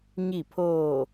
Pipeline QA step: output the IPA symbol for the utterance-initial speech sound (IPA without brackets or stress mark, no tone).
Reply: ɲ